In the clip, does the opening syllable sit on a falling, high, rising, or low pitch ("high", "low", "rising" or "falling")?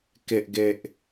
high